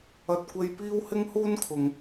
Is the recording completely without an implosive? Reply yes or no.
yes